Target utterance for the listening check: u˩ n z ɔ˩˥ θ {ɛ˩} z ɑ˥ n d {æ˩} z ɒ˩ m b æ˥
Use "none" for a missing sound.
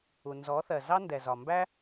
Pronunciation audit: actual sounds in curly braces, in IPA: ɜ˩, ɛ˩

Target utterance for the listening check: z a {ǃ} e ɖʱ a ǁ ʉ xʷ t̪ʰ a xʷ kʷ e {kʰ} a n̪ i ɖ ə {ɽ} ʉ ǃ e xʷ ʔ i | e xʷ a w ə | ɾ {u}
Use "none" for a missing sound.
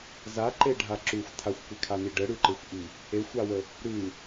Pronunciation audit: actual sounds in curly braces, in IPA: ǃ, kʰ, ɽ, ʉ

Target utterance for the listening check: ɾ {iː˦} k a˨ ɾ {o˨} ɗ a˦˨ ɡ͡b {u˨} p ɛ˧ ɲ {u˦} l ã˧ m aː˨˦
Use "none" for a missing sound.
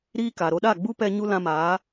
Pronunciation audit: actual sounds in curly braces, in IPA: iː˦, o˧, u˦, u˦

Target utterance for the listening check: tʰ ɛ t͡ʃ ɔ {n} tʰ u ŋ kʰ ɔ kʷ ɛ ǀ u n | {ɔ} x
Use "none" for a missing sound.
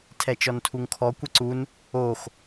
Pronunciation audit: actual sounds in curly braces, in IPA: n, o

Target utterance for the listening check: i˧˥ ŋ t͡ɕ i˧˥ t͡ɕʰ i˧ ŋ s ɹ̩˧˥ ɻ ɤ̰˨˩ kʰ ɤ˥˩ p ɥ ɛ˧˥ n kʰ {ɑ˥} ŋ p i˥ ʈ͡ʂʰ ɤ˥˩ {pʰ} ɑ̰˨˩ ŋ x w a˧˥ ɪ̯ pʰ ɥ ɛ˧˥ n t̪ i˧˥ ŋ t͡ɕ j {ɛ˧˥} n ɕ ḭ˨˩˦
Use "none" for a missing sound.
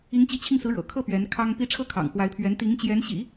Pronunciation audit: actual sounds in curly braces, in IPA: ɑ˥, kʰ, ɛ˧˥

